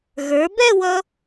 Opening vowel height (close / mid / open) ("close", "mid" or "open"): mid